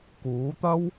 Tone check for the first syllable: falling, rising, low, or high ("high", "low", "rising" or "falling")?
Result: rising